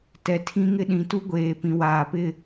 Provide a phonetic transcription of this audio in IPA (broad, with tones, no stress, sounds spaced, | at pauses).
t ɛ˨ tʰ ĩ˦ ŋ ɪ˦ ɗ ĩ˨ t u˦ ɡʷ eː˨ p ĩ˨ w aː˨ p ɪ˦˨